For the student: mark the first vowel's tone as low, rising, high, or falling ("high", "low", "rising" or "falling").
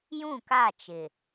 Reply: falling